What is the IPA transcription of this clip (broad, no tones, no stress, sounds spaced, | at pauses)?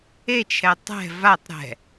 e t͡ʃʰ ɛ tˤ ɛ̤ v a tˤ ɾ ɛ̤